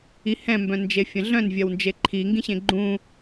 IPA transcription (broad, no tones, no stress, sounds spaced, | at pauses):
i h ɛ̃ m b œ̃ n d͡ʒ e fʲ ɐ̃ ɮ œ̃ n vʲ ɐ w n d͡ʒ e ǃʰ i ŋ ɡ ĩ ɕ ẽ ɡ͡ǃ ũ